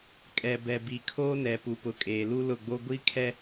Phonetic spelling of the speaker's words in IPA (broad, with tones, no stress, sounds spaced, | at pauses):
kʼ ɛ˨ b ɛ˨ b i˨ kʰ oː˦ n ɛ˨ p u˨ p ʊ˨ kʼ eː˨ l u˦ l ʊ˦˨ ɡ͡b o˦ ɡʷ i˦ kʰ ɛ˦